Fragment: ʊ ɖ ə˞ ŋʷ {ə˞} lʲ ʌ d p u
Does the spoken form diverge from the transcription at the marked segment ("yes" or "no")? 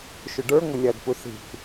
yes